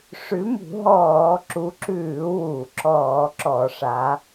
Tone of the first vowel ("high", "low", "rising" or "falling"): rising